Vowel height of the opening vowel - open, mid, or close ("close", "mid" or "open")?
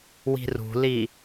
close